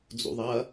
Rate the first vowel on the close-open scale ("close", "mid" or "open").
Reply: close